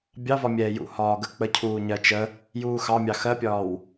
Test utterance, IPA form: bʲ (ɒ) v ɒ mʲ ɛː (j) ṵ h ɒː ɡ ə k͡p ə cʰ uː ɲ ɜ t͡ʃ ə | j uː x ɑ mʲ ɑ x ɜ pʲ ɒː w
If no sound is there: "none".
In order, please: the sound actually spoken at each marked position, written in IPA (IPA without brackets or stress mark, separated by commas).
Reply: ɑ, j